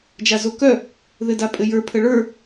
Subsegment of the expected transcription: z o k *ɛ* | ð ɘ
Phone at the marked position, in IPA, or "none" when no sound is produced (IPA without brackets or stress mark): œ